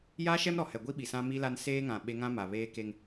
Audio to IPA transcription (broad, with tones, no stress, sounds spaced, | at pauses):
j aː˦ ʃ ɛ˦ m ɾ ɔ˨ h ɛ˨ ɡʷ i˦ ɓ i˨ s ã˦ m i˦ l a˦ n s eː˦ ŋ ã˨ ɓ e˦ ŋ ã˦ m a˨ β eː˦ k e˦ ŋ